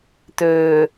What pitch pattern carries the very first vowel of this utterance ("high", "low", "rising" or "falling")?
low